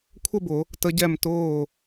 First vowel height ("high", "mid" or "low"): mid